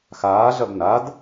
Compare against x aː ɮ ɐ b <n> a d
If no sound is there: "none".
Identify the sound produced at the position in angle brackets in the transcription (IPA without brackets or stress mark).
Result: n